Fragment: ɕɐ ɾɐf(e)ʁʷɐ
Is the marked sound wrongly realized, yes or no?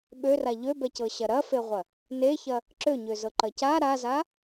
no